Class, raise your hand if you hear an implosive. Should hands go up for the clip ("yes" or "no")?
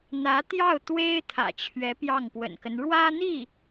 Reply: no